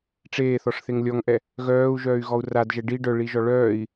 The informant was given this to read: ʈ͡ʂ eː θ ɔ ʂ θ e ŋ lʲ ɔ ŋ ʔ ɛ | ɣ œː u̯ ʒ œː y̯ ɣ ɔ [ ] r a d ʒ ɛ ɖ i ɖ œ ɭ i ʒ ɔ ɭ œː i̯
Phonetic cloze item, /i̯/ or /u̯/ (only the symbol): u̯